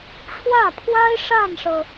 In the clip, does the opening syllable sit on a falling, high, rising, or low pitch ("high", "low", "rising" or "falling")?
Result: falling